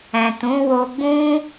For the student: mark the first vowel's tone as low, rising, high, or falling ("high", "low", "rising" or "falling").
low